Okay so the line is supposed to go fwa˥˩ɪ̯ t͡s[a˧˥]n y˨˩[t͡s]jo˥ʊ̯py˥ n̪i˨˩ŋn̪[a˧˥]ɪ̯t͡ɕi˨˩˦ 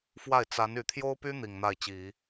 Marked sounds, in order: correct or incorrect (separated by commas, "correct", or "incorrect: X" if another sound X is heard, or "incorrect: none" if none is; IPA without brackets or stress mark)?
correct, incorrect: t̪ʰ, incorrect: a˥˩